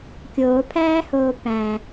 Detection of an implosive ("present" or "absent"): absent